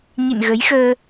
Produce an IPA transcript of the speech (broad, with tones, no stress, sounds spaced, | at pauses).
ɲ ḭ˧˨ n ɣ ə˨˦ j x əː˧